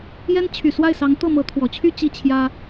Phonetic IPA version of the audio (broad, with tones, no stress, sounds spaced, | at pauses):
j ɛ˥ n t͡ɕʰ y˨˩ s w a˥˩ ɪ̯ s ɑ˧˥ ŋ t̪ ɤ˥˩ m ɤ˧˥ t̪ʰ w ɔ˨˩ t͡ɕʰ y˥˧ t͡ɕ i˥˩ t͡ɕʰ j ä˥